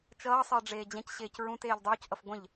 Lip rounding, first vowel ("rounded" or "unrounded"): unrounded